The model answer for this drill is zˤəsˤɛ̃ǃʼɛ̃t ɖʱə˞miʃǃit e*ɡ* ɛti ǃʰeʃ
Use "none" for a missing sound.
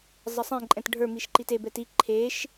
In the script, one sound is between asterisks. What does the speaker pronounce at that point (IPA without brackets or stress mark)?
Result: b